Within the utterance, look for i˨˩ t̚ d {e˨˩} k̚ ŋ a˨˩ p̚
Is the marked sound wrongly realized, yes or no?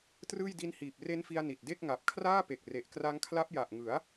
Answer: yes